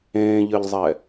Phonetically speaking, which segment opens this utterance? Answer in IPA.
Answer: ẽː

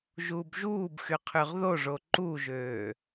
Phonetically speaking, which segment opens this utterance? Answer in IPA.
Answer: ʒ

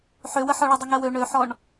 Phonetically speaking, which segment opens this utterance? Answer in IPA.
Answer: ħ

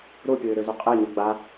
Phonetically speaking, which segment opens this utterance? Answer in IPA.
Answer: ɾ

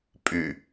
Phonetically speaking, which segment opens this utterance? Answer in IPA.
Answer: pʼ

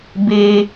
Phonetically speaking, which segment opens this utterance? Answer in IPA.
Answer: b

